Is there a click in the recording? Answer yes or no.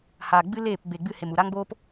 no